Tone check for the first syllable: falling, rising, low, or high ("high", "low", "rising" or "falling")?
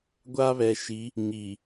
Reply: high